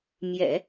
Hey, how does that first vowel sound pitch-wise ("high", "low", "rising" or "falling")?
low